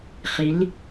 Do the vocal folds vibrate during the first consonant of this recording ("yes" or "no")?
no